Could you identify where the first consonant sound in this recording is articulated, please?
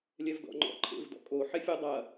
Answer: alveolar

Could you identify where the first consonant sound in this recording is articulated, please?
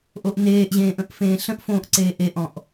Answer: glottal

